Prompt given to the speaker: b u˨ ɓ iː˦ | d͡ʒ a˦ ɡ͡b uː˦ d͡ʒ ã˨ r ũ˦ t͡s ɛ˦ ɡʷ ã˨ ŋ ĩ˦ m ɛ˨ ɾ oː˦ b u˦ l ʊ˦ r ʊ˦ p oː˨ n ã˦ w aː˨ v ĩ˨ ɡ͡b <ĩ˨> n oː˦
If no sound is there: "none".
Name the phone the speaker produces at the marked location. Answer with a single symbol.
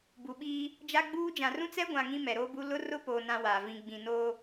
ĩ˨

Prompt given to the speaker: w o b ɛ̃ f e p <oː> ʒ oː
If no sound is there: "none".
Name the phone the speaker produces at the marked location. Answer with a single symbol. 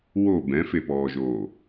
ɔː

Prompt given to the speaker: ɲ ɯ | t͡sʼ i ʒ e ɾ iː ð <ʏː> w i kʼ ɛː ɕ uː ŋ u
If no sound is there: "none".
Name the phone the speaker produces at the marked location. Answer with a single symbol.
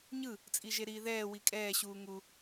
ɛː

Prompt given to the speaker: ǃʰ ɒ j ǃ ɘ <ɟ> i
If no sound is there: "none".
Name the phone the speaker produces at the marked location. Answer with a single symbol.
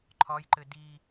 d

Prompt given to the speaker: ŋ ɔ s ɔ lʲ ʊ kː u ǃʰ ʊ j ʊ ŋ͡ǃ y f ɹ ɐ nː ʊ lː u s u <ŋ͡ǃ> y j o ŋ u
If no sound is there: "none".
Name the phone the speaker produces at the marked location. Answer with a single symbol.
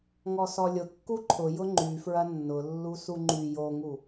ŋ͡ǃ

